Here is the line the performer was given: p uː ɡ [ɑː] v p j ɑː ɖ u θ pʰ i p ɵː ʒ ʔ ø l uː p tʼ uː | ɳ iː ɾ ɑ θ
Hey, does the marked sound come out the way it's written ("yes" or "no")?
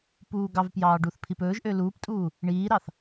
no